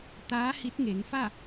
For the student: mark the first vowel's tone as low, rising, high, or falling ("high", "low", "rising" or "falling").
rising